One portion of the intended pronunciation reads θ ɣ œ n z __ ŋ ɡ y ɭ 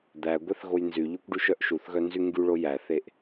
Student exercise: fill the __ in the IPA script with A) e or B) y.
B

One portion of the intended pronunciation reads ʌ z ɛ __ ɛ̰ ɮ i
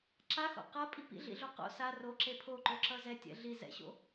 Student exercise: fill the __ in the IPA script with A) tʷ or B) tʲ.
B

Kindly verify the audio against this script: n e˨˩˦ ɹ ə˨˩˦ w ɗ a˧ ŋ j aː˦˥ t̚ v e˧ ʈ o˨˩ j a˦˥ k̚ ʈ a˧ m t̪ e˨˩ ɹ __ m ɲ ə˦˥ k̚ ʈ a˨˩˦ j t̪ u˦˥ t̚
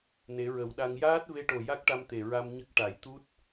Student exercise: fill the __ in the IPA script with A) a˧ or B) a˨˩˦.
A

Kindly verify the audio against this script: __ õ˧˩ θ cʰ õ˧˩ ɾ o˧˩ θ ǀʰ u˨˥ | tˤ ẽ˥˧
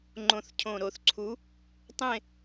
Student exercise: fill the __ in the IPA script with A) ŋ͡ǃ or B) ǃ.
A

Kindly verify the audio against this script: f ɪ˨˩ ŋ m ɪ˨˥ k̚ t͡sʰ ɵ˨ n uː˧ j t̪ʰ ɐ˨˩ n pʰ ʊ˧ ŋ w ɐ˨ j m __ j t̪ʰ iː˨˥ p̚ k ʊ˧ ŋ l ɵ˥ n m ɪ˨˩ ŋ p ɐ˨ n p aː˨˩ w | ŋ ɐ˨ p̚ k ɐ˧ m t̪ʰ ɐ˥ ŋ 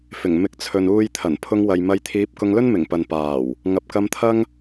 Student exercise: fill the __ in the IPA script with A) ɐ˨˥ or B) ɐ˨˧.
B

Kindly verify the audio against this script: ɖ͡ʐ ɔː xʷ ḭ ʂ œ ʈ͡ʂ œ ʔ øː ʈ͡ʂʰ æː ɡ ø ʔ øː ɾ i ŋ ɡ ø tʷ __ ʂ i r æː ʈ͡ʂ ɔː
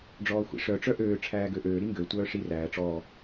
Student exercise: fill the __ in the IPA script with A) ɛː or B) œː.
B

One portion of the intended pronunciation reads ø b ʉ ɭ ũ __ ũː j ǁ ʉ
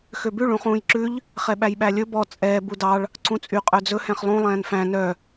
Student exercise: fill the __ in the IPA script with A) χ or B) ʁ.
A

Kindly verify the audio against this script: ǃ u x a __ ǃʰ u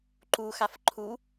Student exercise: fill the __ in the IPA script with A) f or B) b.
A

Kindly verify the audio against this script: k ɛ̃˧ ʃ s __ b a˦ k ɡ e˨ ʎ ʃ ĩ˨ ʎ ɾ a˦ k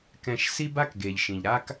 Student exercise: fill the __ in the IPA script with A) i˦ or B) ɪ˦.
A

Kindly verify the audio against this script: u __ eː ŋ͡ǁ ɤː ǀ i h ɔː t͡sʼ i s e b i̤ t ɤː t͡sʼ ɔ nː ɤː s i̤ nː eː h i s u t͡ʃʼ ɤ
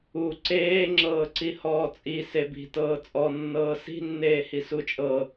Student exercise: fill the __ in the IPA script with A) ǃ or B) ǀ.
B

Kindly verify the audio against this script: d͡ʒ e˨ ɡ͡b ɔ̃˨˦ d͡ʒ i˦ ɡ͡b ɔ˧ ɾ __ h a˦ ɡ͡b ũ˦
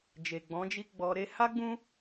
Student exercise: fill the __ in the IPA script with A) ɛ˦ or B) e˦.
B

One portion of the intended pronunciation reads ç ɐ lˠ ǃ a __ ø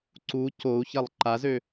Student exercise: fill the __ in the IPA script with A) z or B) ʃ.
A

